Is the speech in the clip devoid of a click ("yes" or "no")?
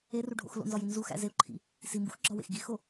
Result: no